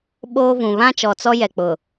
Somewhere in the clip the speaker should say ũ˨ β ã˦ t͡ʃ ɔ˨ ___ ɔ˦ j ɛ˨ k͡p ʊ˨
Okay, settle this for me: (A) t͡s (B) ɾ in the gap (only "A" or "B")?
A